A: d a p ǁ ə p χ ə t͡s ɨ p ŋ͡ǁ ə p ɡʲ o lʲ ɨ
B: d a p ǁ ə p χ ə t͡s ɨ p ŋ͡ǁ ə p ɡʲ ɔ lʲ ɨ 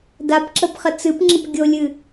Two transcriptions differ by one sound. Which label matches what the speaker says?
A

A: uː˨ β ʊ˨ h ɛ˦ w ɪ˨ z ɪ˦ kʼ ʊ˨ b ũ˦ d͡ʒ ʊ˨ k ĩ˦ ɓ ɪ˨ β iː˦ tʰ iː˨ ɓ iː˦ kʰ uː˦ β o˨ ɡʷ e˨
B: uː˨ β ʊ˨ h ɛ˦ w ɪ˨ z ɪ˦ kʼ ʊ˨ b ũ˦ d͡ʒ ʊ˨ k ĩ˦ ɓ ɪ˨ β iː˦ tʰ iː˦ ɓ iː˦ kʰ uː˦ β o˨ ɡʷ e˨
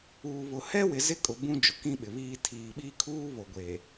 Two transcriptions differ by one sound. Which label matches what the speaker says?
A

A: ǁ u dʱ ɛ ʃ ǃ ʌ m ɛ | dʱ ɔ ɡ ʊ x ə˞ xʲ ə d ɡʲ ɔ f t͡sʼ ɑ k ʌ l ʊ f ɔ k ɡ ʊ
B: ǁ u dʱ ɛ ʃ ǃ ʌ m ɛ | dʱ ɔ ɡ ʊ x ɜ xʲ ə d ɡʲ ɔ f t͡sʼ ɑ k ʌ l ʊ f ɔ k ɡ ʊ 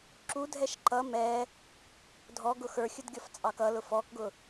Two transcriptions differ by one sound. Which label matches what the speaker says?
A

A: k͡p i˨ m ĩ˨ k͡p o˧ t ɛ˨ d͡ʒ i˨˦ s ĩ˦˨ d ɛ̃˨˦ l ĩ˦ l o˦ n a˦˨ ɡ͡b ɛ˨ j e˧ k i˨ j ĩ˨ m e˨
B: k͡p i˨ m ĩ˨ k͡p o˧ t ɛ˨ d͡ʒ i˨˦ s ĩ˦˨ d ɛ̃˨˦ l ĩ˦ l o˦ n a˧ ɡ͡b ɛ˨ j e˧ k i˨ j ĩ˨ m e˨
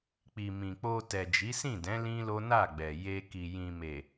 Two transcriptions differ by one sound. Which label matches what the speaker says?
A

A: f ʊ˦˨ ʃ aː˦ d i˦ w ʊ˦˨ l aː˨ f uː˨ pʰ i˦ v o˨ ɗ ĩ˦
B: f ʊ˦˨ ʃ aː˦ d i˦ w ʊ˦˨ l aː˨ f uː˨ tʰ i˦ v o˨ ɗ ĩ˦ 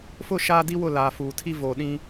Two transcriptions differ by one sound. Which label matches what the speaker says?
B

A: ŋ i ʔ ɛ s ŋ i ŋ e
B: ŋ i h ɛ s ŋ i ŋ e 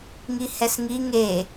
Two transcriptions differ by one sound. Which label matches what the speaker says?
B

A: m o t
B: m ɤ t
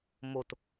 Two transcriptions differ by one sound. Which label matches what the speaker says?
A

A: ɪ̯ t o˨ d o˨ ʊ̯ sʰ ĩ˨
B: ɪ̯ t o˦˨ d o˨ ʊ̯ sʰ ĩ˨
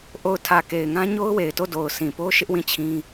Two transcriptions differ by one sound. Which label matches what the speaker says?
B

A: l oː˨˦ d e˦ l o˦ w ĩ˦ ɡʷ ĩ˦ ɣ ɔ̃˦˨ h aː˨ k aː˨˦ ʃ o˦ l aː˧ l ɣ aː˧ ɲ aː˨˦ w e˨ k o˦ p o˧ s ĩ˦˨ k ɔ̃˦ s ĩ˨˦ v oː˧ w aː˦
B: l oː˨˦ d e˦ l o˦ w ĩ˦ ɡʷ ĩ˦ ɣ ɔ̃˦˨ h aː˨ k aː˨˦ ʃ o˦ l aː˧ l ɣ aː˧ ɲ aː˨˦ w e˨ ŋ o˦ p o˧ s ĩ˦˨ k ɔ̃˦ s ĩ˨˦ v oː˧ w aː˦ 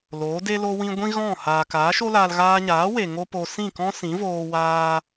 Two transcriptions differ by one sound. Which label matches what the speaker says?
B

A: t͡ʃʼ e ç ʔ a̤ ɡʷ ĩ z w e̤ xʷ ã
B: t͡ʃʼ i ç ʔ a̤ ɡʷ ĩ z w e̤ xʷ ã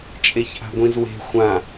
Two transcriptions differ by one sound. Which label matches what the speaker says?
A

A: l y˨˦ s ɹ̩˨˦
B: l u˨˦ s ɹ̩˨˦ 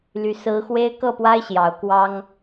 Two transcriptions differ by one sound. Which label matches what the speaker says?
A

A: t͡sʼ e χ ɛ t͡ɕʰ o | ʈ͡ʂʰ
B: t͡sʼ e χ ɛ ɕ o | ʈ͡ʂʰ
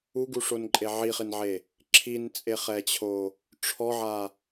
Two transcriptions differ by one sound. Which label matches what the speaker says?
A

